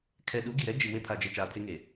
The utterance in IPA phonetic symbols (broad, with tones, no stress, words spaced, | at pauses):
kʰɛ˨ɗu˨˦ ɡi˨ɾɛ˦ d͡ʒi˨we˦ pʰa˨d͡ʒe˨ t͡ʃaː˨pʰe˦ŋe˨